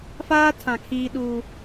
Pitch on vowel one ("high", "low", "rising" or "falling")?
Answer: high